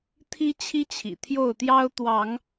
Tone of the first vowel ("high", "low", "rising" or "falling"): high